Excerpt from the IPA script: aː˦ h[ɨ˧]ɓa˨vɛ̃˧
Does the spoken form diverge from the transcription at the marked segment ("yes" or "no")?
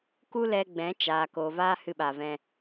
no